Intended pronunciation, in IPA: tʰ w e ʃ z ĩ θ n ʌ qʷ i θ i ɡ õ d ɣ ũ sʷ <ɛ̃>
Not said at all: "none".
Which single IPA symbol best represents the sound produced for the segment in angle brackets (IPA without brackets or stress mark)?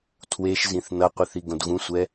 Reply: ɛ